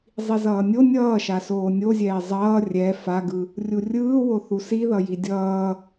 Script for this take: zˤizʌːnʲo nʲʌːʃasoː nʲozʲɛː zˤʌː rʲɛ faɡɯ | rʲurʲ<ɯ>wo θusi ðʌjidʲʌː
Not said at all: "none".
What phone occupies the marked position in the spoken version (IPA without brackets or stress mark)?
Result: ɯː